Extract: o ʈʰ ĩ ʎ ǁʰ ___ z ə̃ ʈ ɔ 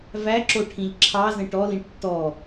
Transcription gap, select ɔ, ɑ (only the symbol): ɑ